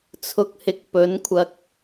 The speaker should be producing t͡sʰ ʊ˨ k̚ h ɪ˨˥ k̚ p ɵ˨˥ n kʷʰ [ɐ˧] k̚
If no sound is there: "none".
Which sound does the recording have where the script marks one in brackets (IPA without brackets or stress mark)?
ɐ˧